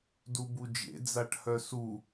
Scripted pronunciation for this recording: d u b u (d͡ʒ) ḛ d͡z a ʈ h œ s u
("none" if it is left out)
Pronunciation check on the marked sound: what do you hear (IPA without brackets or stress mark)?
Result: d͡ʒ